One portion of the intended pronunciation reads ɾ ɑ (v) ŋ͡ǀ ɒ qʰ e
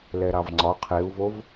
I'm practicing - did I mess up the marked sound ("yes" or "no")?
no